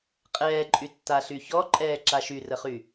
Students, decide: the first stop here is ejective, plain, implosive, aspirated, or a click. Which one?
ejective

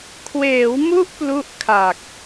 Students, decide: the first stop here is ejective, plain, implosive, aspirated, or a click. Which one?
aspirated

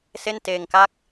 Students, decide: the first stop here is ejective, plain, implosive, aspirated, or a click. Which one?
plain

